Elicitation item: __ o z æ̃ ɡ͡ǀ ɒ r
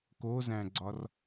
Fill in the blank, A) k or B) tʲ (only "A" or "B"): A